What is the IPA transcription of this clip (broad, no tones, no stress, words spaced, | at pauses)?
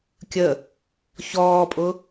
kʲə | çɔːpʼʊ